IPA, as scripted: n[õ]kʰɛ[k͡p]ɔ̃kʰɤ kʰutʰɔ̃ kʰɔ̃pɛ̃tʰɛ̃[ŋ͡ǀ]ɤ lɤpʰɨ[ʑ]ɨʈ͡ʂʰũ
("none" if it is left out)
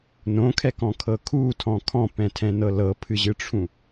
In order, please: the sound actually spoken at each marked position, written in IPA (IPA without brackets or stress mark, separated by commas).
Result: õ, k, n, ʑ